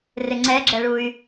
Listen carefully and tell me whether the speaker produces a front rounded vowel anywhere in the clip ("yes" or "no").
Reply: yes